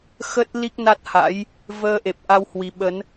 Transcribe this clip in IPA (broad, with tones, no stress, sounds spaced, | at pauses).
x ə˦˥ t̚ l i˦˥ k̚ n a˦˥ t̚ h a̰˧˥ j | v əː˧ ʔ e˨˩ p̚ ʔ a˧ w h w i˧ ɓ ə˨˦ n